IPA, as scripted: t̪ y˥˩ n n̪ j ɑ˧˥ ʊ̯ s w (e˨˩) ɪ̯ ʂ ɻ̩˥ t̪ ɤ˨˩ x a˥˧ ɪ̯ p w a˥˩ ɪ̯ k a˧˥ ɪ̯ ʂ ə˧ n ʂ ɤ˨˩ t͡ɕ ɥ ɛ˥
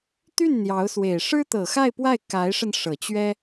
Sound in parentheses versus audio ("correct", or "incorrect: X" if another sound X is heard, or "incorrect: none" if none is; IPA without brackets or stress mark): correct